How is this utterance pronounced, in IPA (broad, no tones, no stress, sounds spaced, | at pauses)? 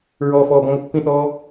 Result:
ɹ ɔː f ɔː b ɔ̃ ŋ o pː ĩ θ ɔː